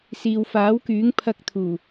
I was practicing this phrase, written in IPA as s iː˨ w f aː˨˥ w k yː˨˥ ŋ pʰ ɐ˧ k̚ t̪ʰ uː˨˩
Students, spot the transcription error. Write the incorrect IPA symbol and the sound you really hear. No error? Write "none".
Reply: none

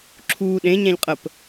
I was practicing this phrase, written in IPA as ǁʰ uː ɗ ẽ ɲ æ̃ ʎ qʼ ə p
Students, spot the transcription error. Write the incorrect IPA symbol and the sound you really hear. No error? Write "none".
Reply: none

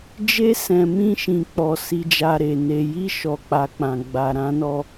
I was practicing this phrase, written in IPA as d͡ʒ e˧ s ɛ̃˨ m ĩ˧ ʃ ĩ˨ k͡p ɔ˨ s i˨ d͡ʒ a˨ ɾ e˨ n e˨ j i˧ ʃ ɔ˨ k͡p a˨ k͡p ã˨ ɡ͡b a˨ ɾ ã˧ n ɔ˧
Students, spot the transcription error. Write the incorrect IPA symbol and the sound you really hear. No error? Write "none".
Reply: none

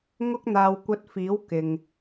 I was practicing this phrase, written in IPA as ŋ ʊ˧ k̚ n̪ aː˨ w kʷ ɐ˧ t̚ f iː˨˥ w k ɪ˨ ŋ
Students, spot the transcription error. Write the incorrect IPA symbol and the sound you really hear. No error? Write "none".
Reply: none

